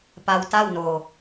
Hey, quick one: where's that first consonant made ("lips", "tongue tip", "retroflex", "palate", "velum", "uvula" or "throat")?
lips